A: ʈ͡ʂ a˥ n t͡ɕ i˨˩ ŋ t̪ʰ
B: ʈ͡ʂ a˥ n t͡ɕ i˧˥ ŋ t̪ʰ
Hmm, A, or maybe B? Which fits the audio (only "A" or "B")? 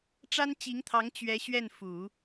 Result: B